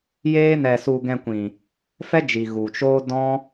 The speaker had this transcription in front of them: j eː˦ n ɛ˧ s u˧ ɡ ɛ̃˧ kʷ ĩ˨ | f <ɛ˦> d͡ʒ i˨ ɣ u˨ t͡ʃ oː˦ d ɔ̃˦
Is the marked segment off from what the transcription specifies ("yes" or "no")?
no